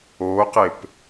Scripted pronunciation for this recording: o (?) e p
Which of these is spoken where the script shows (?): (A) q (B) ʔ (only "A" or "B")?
A